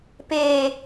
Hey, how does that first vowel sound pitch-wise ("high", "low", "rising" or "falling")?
low